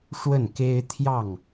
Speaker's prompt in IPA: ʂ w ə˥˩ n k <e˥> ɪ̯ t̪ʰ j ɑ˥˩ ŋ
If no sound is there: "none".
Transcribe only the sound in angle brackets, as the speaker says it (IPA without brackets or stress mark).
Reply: e˥